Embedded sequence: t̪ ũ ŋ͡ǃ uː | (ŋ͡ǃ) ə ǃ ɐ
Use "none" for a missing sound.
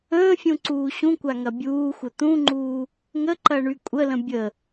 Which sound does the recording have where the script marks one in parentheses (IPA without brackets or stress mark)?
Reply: ŋ